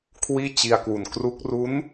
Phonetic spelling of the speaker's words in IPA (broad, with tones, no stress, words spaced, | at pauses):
kʰwiː˥˩t͡ɕi˧a̯kwu˨˩n kru˦˥k̚ ru˦˥n